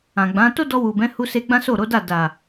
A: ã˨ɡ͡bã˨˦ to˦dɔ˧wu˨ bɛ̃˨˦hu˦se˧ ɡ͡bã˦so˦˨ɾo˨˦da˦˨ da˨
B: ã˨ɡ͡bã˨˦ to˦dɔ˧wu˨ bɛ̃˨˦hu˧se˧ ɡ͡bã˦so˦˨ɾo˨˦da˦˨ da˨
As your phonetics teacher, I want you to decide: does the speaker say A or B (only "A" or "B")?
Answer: B